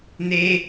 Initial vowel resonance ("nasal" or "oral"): oral